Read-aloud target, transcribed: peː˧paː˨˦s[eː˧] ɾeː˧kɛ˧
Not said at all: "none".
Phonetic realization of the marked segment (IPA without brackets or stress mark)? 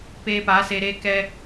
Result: eː˧